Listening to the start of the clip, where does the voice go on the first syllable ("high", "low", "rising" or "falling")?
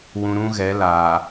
low